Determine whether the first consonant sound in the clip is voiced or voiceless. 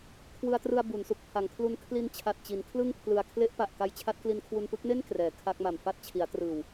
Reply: voiceless